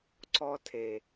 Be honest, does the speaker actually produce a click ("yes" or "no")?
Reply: yes